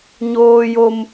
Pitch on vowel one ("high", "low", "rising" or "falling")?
high